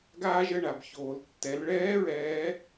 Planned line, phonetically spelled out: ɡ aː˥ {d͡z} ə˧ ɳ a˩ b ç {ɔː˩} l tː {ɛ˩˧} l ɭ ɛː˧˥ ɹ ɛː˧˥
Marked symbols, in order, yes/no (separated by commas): no, no, yes